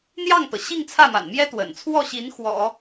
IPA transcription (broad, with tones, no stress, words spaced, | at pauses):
n̪jɑ˥˩ŋt̪ɤ˩ ɕi˥˧ŋt͡sʰä˥˩ma̰˨˩nmjɛ˥ t̪wə̰˨˩nt͡sʰwɔ˥˩ɕi˧˥n xwɔ̰˨˩˦